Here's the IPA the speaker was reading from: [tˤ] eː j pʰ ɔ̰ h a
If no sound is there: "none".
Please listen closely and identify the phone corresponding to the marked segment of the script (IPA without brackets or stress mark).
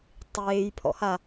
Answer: tˤ